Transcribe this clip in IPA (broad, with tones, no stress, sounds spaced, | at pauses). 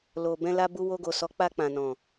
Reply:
l o˨ b ɛ̃˧ l a˧ b u˧ w o˧ ɡ o˨ s ɔ˨˦ k͡p a˧ k͡p ã˨ n ɔ̃˨